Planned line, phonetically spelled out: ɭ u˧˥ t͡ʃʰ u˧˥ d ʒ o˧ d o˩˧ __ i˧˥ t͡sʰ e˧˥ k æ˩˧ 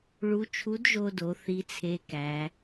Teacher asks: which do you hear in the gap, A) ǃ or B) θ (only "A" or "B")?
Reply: B